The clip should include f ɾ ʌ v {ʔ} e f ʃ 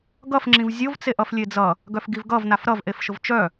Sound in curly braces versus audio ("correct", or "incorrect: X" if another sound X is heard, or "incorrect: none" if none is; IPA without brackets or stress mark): correct